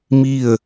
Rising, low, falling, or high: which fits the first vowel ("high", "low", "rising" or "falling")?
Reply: falling